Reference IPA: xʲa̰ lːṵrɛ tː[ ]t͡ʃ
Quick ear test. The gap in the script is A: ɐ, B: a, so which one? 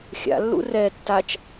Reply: B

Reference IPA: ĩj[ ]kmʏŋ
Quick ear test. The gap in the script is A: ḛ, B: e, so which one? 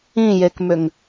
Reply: B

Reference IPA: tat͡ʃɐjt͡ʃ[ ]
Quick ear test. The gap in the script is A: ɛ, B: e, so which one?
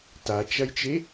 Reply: B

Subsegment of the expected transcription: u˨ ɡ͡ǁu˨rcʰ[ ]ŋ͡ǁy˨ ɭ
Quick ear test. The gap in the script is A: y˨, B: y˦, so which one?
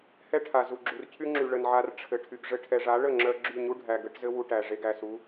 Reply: B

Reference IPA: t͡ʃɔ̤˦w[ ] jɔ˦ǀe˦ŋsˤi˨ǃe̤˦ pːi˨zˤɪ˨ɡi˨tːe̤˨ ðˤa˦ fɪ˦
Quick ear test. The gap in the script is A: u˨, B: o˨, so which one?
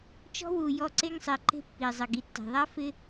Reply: A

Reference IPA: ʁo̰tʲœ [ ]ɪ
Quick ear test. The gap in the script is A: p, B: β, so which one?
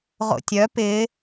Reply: A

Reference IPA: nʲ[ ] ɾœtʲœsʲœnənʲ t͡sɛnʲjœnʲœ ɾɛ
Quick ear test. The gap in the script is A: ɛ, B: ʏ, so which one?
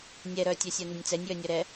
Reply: A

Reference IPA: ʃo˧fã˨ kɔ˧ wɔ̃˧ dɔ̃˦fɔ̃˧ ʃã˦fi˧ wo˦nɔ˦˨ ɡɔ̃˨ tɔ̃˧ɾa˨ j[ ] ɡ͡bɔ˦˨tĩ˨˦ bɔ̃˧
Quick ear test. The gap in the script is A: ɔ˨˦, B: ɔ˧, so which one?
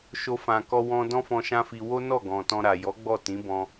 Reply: A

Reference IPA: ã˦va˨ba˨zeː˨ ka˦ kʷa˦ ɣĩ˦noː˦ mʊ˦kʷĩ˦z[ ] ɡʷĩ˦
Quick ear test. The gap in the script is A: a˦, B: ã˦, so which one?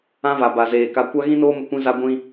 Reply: A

